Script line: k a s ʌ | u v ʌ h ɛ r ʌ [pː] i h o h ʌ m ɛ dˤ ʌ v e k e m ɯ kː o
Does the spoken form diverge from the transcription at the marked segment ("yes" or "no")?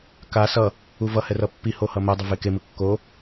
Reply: no